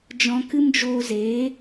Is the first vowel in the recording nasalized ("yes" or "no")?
yes